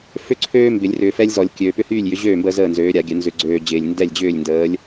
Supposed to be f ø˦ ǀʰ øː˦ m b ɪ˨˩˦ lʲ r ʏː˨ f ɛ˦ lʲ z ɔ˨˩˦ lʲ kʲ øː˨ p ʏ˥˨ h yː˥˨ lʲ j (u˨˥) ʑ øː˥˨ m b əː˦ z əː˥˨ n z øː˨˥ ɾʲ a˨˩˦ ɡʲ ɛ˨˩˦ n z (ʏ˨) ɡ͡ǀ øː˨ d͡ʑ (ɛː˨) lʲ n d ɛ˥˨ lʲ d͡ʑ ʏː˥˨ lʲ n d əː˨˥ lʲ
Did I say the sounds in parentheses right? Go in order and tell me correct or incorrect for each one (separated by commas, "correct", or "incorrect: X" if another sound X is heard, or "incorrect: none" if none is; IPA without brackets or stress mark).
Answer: incorrect: ʏ˨˥, correct, incorrect: ɪː˨